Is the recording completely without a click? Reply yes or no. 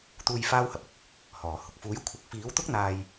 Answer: yes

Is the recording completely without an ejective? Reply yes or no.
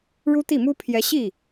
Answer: yes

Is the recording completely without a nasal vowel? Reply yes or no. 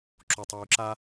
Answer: yes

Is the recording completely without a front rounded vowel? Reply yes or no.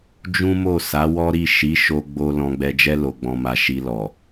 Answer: yes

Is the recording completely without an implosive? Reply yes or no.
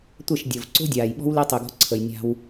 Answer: no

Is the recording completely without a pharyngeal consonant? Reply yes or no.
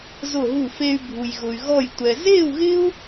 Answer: yes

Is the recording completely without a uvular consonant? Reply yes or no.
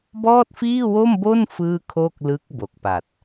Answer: yes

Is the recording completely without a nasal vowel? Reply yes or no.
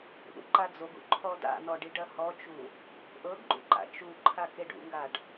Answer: yes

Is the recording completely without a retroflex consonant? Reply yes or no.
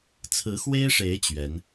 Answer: no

